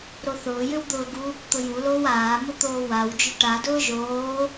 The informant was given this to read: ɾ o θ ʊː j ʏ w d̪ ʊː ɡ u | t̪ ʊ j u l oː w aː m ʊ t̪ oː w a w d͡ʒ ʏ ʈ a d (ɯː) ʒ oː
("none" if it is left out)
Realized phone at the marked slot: ʊː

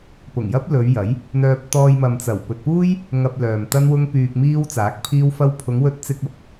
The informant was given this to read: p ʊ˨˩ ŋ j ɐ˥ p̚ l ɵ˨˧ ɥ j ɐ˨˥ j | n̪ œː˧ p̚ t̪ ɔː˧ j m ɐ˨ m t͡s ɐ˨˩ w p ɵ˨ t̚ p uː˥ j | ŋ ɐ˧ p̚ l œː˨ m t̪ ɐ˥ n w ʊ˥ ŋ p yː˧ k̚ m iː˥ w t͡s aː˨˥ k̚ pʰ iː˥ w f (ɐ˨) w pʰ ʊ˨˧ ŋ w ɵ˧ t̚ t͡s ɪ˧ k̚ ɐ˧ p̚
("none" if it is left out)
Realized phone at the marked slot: ɐ˥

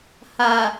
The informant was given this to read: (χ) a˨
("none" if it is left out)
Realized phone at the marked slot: h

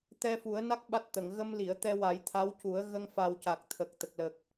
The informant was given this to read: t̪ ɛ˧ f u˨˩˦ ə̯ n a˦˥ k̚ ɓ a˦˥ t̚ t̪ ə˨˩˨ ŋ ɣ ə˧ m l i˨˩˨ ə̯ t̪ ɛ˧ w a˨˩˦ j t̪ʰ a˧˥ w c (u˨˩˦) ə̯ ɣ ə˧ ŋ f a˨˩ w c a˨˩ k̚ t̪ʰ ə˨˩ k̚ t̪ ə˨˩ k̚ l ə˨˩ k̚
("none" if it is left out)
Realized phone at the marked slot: u˨˩˦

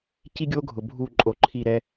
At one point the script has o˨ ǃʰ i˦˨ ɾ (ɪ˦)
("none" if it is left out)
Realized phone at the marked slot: ɛ˦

